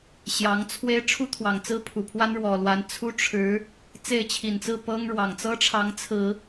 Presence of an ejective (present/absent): absent